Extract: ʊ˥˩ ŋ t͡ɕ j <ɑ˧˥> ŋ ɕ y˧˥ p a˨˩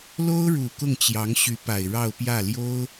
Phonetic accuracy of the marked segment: correct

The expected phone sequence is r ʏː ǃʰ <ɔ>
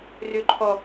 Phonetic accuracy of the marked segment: correct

